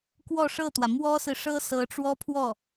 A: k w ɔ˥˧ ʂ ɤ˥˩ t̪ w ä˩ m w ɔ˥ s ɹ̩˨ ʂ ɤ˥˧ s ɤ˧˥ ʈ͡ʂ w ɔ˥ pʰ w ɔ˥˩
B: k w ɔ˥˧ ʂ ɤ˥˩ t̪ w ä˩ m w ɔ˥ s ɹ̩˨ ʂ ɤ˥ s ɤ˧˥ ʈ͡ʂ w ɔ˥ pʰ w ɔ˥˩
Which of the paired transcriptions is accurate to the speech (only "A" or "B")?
B